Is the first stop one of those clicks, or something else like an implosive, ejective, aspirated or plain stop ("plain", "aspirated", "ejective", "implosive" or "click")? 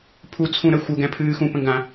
aspirated